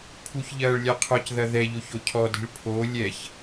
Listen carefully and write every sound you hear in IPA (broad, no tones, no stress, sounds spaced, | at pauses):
pʰ u ç ʎ ɐː ɭ lʲ a qʰ ɔ c ð ɐ ð ɛ ʎ o ç o cʰ ɔ d i̤ ɭ pʰ o lʲ ɛ ç